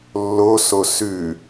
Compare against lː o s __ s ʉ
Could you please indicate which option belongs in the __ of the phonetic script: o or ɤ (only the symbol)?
o